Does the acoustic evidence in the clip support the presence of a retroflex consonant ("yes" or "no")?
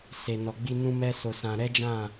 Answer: no